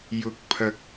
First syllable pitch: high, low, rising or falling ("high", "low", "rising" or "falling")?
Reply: low